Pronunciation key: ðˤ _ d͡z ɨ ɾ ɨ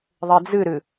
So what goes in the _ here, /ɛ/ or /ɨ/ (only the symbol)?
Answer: ɛ